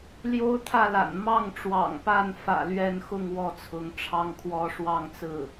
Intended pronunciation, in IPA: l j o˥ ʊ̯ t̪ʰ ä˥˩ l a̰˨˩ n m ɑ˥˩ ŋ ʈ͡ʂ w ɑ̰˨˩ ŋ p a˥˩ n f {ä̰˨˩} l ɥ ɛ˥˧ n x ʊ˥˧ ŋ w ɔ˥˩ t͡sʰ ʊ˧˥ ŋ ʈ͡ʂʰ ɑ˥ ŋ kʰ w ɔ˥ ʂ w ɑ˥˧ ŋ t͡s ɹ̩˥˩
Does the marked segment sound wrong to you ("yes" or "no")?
no